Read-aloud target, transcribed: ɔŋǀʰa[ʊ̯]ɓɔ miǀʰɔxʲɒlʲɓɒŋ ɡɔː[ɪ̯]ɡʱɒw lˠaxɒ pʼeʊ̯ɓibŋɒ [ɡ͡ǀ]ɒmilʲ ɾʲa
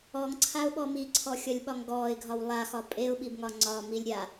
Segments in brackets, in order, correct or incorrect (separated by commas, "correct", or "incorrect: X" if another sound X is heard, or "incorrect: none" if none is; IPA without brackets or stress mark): correct, correct, incorrect: ŋ͡ǀ